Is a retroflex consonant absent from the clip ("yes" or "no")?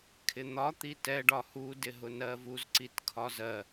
no